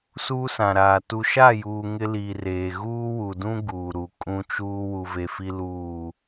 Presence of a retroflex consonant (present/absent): absent